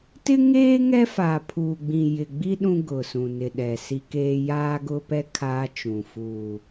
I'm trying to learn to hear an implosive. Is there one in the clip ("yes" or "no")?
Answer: yes